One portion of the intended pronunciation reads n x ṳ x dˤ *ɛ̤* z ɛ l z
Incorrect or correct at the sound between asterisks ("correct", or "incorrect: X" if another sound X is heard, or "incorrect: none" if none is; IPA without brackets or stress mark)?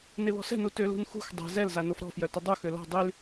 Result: correct